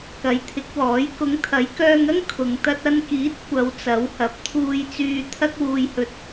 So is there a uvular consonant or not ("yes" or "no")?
no